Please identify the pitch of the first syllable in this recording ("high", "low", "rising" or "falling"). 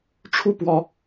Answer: falling